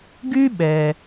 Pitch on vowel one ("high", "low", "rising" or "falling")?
high